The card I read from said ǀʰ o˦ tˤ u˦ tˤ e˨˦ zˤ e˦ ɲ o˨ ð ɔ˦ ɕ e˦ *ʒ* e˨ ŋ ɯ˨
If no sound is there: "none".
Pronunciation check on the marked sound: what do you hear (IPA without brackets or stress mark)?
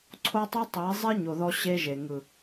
ʒ